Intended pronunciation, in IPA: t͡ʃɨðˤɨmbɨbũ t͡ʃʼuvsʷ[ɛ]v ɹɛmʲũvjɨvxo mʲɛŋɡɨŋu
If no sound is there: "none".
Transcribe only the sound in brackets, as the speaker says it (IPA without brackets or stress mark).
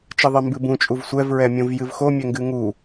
ɛ